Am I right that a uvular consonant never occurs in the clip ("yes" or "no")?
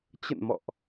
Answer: yes